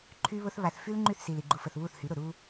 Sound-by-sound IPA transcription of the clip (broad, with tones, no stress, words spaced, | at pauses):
ǃʰy˦βʊ˦θ βa˨θfy˦l ŋ͡ǃy˦˨θsi˨li˨ ɡ͡ǃu˨fə˨θ βu˦˨θhy˨˦ɾʊ˨ ɾu˦